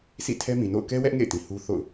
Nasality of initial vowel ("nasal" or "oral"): oral